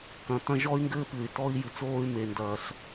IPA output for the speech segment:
k ɐ̃˨ t ɐ̃˦ ʒ ɔ˦ y̯ ŋ ɡ ɘː˦ p ɨ˨ y̯ t ɔ˦ i̯ j ɨ˨ t͡s oː˦ y̯ m e˨ n d ɐː˨ ɬ

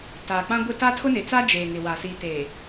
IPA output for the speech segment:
t aː˨ k͡p ã˦ ɡʷ ɪ˦ t a˦ tʰ ʊ˦ n ɪ˨ t͡s a˦ d͡ʒ eː˨ ŋ ɪ˨ w a˨ s i˨ t eː˨

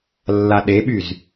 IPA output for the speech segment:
lː a ɗ e ɓ y z

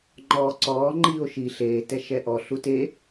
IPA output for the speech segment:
ŋ͡ǃ ɔː ǀ ɔː ŋ͡ǃ iː o̯ ʃ i ɬ eː t ɛ ʃ ɛ ʔ ɔ ɬ u t e

